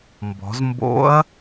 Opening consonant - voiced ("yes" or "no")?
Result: yes